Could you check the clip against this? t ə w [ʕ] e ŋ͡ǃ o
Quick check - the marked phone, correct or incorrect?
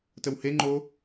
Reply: incorrect